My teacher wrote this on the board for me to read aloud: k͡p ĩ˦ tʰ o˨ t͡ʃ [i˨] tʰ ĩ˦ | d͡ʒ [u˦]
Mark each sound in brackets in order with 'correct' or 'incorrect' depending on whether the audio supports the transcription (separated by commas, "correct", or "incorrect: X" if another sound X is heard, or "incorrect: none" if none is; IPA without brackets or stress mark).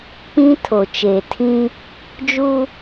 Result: incorrect: e˨, correct